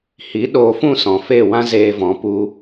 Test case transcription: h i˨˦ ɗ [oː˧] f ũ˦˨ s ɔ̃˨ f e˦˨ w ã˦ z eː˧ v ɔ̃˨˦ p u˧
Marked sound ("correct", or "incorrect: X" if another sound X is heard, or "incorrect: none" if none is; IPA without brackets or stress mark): correct